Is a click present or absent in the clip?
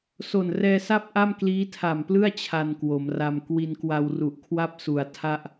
absent